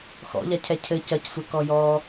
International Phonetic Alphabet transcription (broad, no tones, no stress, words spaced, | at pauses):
xɔ̰ʎacʰɛ cʰɘ cɐcsʷɛkɔ jɔ